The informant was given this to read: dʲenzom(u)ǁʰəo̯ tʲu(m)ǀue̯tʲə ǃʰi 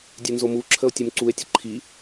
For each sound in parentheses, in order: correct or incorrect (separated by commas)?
correct, correct